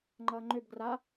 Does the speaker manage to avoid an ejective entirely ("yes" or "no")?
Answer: yes